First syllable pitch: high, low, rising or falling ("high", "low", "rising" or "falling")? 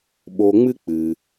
low